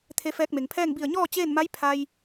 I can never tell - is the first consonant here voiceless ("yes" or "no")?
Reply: yes